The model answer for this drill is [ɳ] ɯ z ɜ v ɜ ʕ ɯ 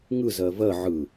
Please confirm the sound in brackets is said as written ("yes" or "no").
no